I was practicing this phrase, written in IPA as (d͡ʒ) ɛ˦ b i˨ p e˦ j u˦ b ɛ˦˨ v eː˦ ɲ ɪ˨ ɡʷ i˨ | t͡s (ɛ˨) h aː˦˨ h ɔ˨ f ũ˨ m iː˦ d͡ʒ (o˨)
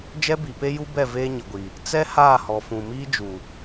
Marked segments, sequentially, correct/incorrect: correct, incorrect: ɛ˦, incorrect: u˨

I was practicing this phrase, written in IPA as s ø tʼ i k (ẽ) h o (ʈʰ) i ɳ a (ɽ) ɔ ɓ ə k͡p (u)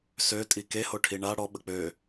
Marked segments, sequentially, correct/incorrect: incorrect: e, correct, correct, incorrect: ø

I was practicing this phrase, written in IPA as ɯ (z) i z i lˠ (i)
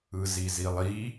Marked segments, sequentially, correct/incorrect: correct, correct

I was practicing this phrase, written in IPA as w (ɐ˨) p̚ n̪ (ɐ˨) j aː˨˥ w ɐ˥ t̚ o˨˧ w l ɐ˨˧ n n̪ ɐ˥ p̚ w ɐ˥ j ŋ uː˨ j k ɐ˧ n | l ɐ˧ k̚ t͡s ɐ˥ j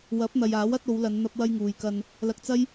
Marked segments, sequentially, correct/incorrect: incorrect: ɐ˨˥, correct

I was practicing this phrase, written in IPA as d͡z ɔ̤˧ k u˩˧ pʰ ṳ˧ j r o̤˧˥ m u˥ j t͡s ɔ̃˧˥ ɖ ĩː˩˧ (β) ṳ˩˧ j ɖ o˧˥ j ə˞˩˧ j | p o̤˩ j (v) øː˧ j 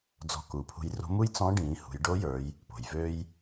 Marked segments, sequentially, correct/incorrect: incorrect: h, correct

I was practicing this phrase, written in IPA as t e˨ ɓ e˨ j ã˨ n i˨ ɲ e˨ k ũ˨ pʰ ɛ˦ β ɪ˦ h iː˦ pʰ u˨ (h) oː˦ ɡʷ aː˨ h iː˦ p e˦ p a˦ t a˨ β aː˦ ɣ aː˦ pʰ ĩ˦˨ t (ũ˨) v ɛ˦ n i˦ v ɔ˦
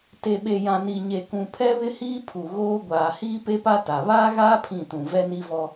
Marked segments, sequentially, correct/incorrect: incorrect: ɣ, correct

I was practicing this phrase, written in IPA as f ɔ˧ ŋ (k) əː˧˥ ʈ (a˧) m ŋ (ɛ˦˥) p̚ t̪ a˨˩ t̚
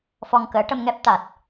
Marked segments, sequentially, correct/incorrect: correct, incorrect: ə˧, correct

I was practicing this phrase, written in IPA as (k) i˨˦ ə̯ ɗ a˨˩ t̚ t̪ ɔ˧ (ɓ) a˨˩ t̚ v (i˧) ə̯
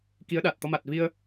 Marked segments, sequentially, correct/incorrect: correct, incorrect: m, correct

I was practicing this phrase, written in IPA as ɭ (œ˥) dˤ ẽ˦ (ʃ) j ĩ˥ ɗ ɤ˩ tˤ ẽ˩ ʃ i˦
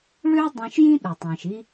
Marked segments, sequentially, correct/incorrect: incorrect: ø˥, correct

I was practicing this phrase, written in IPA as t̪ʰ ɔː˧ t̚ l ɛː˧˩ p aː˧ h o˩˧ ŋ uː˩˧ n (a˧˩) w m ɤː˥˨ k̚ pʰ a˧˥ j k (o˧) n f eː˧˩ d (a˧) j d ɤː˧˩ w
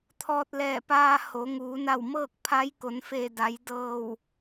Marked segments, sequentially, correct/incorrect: correct, incorrect: o˩˧, incorrect: a˩˧

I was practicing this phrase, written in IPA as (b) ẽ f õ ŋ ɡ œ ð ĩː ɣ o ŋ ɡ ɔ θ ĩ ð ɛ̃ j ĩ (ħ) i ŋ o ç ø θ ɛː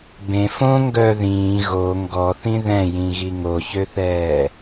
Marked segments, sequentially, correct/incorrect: correct, incorrect: ɣ

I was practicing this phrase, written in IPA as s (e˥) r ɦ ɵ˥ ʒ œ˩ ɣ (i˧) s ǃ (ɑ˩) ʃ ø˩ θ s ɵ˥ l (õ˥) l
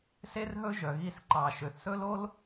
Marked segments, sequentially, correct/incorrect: correct, correct, correct, incorrect: o˥

